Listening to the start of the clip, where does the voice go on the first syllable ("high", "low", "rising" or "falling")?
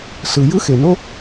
low